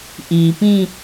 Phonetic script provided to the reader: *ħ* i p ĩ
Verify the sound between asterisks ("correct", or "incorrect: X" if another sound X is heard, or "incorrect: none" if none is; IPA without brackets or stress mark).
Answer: incorrect: ʔ